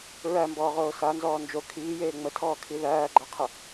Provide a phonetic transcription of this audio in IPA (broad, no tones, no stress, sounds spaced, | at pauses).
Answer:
ɹ æ m b ɔː ʁ oː s a n z ɔː n d͡ʒ o kʰ iː j eː ŋ͡m ə tʰ ɔː kʰ i ð æː ɡ͡ǃ a qʰ ə